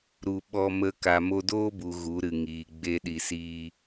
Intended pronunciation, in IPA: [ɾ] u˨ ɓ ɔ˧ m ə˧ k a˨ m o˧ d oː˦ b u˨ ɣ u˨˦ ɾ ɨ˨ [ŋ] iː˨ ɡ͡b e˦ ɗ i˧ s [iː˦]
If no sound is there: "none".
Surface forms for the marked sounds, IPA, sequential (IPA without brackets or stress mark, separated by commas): ɾ, ŋ, iː˦